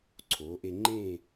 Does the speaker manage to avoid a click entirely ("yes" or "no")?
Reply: no